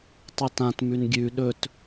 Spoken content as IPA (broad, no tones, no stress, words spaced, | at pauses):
tˤʉtãtmʉn ɡʲʉ ɗɵt